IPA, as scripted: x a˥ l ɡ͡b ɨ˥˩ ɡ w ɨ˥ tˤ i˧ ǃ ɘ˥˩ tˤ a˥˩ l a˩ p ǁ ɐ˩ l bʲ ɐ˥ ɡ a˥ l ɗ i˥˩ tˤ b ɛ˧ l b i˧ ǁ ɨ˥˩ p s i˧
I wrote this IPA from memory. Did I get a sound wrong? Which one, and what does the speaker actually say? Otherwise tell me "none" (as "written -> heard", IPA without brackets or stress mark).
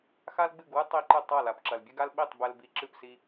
ɗ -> ɓ